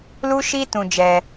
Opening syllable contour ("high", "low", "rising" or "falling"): high